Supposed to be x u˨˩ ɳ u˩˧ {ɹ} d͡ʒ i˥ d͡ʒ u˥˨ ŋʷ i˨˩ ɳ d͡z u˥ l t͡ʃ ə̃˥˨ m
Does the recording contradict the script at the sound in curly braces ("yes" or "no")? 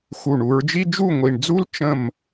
no